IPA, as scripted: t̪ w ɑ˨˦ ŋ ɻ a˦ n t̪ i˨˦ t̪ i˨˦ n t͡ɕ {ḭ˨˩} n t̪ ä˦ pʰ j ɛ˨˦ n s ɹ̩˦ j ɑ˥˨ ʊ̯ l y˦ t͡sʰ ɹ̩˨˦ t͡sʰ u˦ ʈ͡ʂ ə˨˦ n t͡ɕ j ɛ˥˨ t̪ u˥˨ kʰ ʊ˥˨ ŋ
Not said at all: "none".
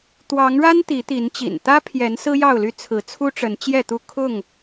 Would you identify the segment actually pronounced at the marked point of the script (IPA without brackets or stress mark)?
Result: ḭ˨˩